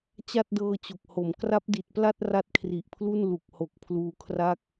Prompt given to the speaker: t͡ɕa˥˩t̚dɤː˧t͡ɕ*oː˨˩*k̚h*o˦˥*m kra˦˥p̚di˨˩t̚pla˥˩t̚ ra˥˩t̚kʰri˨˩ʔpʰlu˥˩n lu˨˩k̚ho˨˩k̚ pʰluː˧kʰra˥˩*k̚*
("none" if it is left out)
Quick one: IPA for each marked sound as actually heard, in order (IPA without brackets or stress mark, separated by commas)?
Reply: o˨˩, o˩˦, k̚